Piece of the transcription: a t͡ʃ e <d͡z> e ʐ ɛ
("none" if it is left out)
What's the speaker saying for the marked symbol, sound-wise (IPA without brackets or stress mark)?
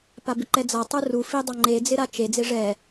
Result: d͡z